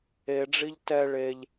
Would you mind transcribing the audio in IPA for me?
eɖ͡ʐiʎ tɛ ɭeʎ

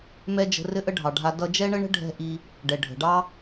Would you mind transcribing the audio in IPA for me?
mɛ˥d͡ʒə̤˧ rɘ˥ʔə˥ɖʱɑ˩ɖʱa˧ dʌ˧d͡ʒɛ˥ɳə˥ɳə̤˥ ɖʱɛ̤˥ʔi˧ | ɖɛ˩ ɖʱə̤˩ɖɑ˥

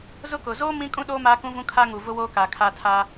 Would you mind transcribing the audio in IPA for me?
zʊ˦kʊ˨ zoː˦ mĩ˦kʼũ˦ɗoː˦ maː˦kũ˦vũ˦ kʰa˦ŋu˨ vʊ˦woː˦ka˨ kʰa˦tʰa˦

